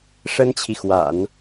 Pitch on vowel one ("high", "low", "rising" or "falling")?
high